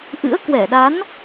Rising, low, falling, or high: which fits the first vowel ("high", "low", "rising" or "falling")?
rising